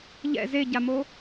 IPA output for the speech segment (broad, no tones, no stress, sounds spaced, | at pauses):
ʎ ɛ̰ z e ɟ a m o